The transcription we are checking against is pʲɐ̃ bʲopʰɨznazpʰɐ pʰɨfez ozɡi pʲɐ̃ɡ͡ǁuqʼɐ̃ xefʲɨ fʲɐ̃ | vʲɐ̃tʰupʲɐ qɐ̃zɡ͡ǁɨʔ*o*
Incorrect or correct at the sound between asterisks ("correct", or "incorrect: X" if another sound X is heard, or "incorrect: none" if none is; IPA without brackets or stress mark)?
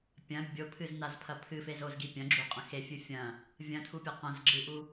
incorrect: u